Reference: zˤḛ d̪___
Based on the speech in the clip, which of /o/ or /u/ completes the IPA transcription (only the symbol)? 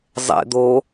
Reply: o